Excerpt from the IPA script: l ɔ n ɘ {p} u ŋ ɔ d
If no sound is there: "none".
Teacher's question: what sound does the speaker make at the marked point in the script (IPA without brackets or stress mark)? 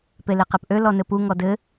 p